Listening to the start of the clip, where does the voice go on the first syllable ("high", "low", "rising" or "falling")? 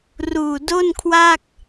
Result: low